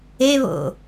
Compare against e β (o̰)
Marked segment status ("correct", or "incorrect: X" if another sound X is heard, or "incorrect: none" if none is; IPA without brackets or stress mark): correct